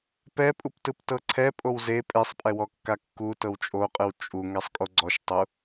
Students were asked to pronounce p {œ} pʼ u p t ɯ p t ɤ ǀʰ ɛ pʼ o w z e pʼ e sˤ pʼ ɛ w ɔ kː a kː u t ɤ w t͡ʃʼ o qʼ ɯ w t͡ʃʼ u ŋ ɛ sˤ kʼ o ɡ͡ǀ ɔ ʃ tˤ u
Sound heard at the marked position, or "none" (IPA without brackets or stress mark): ɛ